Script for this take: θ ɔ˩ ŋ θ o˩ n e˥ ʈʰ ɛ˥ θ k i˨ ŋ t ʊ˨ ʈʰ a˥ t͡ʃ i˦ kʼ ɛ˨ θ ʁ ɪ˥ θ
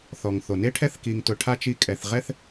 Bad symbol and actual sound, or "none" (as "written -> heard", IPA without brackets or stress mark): ɪ˥ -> ɛ˥